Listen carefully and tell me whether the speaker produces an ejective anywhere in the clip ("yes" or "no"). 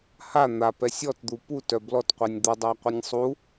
no